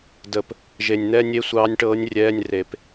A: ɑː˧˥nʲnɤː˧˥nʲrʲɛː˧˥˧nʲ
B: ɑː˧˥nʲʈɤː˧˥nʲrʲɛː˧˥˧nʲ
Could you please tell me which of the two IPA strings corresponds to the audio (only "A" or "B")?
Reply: B